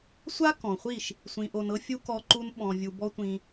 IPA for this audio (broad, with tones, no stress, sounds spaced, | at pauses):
sʷ a˦ k ɔ̃˨ χʷ i˦˨ ʃ | sʷ ĩ˧ ʔ o˧ n ɤ˦ fʲ u˦ k ɔ˦ ǃ u˦ n ɓ ɔ̃˧ vʲ u˧ b ɔ˦ tʷ ĩ˧